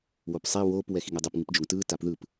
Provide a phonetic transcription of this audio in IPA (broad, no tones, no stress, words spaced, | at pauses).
wopsˤi woːp wɛxiŋɛdˤɛp ŋɯpd͡ʒoŋtɯː tapðɯp